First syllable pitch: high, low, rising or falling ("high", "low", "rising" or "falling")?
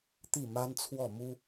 falling